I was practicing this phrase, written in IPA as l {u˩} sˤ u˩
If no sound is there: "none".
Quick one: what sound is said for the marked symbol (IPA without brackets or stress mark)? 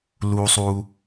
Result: u˩